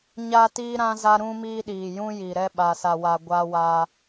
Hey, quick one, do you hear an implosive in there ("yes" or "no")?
yes